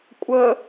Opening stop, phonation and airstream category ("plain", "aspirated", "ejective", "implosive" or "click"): ejective